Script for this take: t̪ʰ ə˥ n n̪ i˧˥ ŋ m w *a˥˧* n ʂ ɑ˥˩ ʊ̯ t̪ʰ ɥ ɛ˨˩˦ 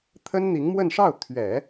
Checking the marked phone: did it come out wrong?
yes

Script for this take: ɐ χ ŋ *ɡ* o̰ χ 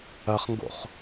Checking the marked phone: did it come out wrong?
no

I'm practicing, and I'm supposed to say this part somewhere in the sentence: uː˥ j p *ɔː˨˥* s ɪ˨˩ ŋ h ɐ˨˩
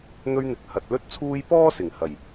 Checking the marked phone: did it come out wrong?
yes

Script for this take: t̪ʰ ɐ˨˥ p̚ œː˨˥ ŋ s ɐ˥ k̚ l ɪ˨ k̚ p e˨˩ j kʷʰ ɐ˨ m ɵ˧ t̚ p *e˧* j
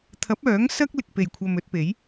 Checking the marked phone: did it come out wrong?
yes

